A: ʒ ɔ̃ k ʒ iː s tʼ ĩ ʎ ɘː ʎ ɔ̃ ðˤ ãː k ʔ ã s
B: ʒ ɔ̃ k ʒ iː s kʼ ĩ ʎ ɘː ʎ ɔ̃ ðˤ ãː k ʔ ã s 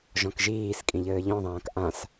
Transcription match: B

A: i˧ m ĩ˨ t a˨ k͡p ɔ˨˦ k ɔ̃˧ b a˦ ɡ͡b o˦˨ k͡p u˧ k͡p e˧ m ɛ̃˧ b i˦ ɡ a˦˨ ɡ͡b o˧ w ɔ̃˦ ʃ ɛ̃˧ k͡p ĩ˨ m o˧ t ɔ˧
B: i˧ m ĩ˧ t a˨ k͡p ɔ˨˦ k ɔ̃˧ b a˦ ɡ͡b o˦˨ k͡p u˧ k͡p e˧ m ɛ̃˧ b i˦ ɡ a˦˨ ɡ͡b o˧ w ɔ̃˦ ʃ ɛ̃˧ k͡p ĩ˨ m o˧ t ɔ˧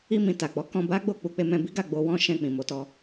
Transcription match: A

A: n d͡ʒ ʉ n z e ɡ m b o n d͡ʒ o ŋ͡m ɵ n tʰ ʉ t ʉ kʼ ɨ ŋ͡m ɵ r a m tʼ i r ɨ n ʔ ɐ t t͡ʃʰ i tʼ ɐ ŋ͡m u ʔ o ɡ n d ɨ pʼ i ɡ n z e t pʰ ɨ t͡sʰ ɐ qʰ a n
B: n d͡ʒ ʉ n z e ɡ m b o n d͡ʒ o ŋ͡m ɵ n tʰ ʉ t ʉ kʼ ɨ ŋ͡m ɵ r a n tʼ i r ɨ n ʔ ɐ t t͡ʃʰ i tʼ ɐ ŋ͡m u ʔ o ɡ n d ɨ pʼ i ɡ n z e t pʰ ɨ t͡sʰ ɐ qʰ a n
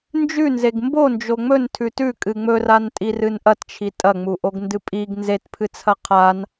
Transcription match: B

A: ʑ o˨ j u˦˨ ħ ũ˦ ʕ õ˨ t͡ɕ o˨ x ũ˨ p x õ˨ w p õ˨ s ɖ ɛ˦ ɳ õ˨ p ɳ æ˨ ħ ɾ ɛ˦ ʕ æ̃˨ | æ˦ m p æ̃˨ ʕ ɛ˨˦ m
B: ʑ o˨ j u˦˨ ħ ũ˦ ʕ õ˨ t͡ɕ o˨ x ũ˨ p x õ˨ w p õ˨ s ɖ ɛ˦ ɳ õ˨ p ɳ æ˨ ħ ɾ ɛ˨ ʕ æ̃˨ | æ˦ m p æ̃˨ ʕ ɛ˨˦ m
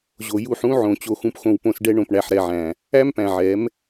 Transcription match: B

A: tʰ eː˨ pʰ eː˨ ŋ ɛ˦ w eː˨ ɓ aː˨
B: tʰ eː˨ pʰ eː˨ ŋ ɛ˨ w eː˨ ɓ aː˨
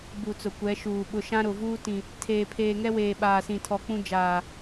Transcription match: A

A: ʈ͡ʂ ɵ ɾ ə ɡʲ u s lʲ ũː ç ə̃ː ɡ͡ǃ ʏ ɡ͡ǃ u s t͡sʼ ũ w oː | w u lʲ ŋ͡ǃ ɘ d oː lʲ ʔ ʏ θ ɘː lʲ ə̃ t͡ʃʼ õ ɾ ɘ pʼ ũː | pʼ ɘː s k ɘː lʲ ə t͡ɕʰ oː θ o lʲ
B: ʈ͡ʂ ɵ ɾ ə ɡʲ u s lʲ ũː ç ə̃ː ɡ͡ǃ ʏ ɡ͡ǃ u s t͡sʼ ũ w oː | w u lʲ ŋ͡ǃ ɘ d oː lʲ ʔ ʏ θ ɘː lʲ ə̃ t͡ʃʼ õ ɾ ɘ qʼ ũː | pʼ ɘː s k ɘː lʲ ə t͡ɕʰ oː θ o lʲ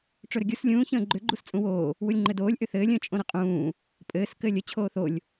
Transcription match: B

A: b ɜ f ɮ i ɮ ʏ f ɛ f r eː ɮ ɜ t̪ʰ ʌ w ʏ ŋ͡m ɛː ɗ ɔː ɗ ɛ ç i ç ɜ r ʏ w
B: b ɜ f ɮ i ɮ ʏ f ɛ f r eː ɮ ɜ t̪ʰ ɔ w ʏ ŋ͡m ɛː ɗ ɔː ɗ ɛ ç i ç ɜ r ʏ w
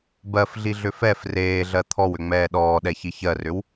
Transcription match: B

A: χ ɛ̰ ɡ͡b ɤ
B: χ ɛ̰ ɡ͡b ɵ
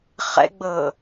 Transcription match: A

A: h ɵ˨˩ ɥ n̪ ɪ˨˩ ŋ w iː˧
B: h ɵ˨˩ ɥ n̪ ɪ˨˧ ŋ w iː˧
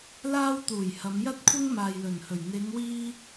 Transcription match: B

